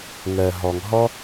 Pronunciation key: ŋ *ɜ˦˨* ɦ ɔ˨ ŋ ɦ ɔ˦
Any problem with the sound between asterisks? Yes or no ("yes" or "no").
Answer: yes